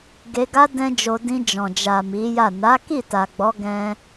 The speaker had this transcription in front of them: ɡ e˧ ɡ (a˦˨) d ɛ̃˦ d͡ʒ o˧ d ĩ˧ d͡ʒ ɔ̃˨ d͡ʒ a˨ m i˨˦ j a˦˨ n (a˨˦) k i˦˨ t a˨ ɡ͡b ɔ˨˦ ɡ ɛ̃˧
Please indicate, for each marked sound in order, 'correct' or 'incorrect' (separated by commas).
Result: incorrect, correct